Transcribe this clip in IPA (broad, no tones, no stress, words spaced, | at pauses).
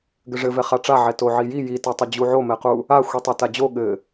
ɡɘʐɘvɛ χaʈ͡ʂaʕɛ toʕiji jitatˤɘ d͡ʑuʕomɛqu | a xʷitˤɘtad͡ʑo ɠɘ